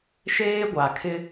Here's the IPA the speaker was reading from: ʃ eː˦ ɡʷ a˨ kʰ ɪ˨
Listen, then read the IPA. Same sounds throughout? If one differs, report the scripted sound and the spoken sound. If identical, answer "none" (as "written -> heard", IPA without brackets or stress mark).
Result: ɪ˨ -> ɪ˦